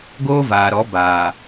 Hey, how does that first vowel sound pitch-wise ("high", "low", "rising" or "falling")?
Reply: high